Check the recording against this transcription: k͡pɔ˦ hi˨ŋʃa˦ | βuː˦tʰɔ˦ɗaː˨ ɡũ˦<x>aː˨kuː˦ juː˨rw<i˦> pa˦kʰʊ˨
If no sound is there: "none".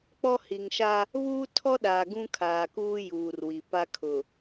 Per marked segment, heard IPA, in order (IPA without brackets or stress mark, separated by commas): kʰ, i˨